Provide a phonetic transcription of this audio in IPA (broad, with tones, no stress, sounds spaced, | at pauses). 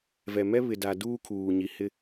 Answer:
v ɛ˨ m ɛ˦ β ɪ˨ d a˨ d uː˦ kʰ uː˨ ɲ i˨ h ɪ˦